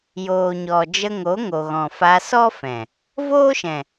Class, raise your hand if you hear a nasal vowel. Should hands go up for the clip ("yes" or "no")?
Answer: yes